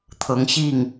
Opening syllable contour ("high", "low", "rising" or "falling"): rising